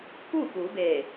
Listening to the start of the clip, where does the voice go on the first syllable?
falling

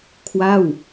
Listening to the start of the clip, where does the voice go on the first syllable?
falling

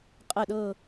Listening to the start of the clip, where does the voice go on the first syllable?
falling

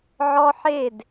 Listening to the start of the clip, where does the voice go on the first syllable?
high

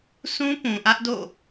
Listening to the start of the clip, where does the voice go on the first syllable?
high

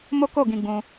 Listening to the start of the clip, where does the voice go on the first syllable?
high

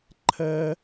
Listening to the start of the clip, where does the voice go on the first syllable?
high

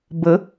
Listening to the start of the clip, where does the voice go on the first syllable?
rising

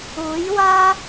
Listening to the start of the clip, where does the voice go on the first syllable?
rising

